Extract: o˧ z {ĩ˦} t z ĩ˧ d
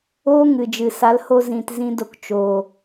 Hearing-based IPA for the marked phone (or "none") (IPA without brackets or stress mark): ĩ˨